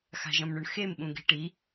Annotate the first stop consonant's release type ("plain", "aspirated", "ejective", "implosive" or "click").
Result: implosive